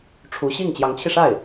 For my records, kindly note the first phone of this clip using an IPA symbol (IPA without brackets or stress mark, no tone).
ʈ͡ʂʰ